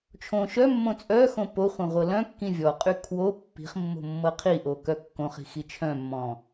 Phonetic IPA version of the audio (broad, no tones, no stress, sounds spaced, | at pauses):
t͡ʃʰ õ ʃ œ mː õ t͡sʼ œ x õ p o χʷ œ̃ ʁʷ ɤ l œ̃ kː ĩ vʲ ɔ qʼ y kʰ w o pː i̤ χ mː o̤ mː ɤ qʰ i ʔ o k œ kː õ χ i̤ x i t͡ʃʰ œ̃ mː ɔ̃